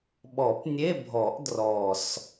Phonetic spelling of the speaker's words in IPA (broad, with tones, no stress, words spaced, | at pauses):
ɓɔ˨˩˦pnʲe˧˥˧bʱɔ˨˩˦ʔ drɔ˨˩s